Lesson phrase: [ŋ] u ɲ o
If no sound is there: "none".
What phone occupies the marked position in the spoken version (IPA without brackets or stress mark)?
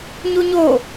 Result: ɲ